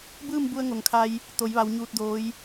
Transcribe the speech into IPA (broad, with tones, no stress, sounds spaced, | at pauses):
b ɯː˥˨ m b u˧ ə̯ ŋ o˩ ŋ kʰ a˧ j | t̪ o˩˧ j ʋ a˩˧ w ɲ uː˧ t̚ d oː˧˥ j